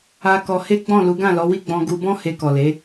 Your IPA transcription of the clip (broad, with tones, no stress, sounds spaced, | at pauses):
a˧ k ɔ˧ h e˦ ɡ͡b ɔ̃˦˨ l u˨˦ ɡ ã˦˨ l ɔ˨˦ w i˦ ɡ͡b ɔ̃˧ ɡ u˧ b ɔ̃˦ h e˧ k ɔ˨ l e˨˦